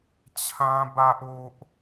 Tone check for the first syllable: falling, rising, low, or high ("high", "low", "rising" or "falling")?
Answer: high